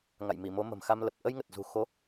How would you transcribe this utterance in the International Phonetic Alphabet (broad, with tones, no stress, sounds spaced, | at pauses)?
ŋ a̰˧˨ j m i˧˩ m o˨˦ m ə̤˨˩ m x a˧ m l ə˨˩ p̚ ʔ ə˧ j ŋ ə˨˩ t̚ z ṳ˨˩ x o˨˦